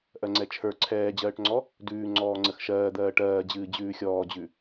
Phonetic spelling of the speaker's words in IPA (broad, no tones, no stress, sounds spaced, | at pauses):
ʔ ɜ ŋ͡ǀ ɛ t͡ʃʰ ə˞ ǀʰ ɛː d͡ʑ ɜː ʈ ŋ͡ǀ ɔ | d ʉː ŋ͡ǀ ɔː ŋ͡ǀ ə x ʃ ɜː d̪ ɜː ʈ ɜː d͡ʑ ɨː d͡ʑ ʉː xʲ ɔː d͡ʑ ʉ